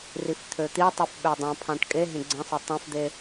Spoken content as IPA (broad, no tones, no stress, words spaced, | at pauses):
rift̪ʰøt̪itˤif ɓødˤæ̃pʰɑ̃ʈ kʼe ɦẽɡ͡ǀẽsˤo tˤæ̃fd̪e